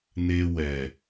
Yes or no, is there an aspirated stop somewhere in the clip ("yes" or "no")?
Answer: no